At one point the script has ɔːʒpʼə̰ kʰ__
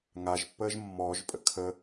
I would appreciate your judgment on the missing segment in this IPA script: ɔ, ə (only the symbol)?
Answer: ə